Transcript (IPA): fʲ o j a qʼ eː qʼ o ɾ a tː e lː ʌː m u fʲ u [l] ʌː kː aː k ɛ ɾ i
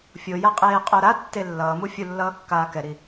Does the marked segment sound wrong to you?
yes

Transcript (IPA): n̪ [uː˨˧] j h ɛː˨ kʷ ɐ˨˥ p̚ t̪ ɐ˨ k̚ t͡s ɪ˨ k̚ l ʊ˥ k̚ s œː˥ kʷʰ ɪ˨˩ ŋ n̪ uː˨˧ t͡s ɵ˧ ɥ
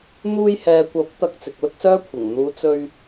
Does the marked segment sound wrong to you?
yes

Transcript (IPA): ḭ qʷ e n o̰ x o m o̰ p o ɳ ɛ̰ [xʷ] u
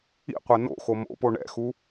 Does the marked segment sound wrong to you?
yes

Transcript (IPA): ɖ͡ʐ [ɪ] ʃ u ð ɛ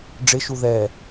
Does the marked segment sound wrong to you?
no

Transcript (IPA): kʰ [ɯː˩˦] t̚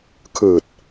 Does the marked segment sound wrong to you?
yes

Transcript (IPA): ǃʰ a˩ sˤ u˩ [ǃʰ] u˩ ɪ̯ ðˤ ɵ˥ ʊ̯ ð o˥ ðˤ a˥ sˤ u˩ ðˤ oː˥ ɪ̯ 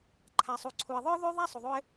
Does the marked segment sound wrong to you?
yes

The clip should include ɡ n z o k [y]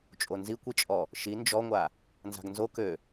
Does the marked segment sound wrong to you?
yes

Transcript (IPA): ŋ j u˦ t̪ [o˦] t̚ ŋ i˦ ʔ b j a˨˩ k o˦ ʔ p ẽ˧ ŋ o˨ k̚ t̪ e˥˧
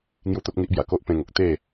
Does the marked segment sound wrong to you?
no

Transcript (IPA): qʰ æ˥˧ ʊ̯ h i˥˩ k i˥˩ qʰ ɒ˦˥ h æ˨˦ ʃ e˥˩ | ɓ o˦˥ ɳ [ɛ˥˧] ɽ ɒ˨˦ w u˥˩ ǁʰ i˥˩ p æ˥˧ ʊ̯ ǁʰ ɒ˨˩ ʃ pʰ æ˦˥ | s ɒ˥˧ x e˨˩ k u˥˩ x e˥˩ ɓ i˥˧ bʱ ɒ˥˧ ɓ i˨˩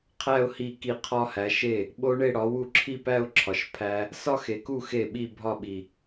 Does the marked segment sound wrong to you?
yes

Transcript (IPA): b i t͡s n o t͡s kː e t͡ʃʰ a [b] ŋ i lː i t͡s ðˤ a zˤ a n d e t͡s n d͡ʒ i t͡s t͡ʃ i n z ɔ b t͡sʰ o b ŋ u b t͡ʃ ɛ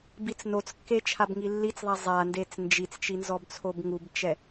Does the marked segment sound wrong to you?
no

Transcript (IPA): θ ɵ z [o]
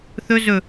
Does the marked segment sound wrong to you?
yes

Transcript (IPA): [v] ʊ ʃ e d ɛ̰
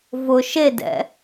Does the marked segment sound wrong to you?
no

